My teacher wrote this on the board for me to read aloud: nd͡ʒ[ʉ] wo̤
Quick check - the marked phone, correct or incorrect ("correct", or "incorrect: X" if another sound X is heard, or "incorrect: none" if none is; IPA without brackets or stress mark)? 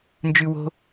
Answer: correct